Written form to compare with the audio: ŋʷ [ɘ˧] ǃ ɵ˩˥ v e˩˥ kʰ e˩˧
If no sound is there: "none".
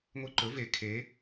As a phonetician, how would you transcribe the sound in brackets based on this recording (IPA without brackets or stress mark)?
e˧